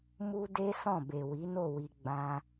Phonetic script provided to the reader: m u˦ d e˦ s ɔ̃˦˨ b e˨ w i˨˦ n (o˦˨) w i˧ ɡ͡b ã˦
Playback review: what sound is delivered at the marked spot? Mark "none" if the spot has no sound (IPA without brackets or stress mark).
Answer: o˦˨